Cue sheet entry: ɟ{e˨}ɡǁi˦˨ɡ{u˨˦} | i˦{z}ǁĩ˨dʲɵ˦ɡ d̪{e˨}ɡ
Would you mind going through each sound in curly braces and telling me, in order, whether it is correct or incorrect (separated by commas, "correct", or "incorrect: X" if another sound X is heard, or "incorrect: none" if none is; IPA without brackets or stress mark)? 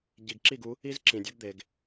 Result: incorrect: i˨, correct, correct, correct